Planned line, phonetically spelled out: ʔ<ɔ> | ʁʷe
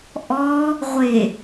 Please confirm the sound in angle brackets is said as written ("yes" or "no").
yes